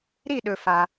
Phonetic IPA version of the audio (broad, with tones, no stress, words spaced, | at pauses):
ɾi˥˧ɗɵ˧ fa˧